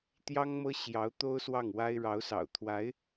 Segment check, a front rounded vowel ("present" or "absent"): absent